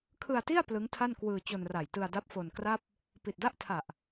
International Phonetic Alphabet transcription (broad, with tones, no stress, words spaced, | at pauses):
kʰɯ˧a̯ti˥˩a̯ plɯ˦˥ŋtʰa˥˩nkwɯː˧ t͡ɕo˧nra˨˩jtɯ˧a̯da˦˥p̚ fo˧nkra˥˩p̚ | pi˨˩t̚da˥˩ʔtʰa˨˩ʔ